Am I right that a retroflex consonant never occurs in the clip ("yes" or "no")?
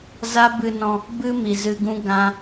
yes